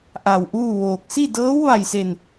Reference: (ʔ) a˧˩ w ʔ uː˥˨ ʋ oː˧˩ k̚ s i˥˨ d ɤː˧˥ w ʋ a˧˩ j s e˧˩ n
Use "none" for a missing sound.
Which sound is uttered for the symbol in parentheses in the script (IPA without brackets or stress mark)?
ʔ